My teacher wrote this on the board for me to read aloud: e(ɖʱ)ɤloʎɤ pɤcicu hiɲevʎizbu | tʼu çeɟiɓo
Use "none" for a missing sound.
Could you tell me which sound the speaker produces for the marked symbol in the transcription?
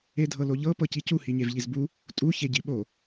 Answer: dʱ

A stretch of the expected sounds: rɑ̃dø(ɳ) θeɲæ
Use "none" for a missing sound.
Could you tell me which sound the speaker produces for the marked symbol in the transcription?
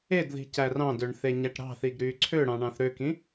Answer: ɳ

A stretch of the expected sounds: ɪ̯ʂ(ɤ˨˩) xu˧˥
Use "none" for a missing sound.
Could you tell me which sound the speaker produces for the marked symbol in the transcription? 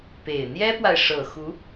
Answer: ɤ˨˩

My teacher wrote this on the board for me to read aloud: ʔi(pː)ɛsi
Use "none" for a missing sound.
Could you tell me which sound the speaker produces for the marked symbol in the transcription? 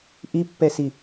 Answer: pː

